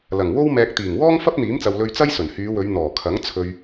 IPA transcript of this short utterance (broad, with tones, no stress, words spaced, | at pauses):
lɐ˨˩ŋwo˥w mɛː˨k̚t̪iː˨˩ŋwɔː˥ŋ fɐ˥p̚n̪iː˨˥mt͡sɐ˨w lɵ˧ɥt͡sɐ˥jsɵ˨˩n hyː˨˧wɵ˨˧ɥ n̪ɔː˨˩kʰɐ˨˥ŋ t͡sʰɵ˨ɥ